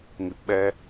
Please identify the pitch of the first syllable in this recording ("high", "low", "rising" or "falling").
low